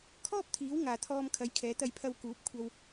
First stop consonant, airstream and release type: aspirated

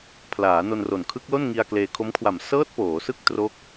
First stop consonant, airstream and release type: aspirated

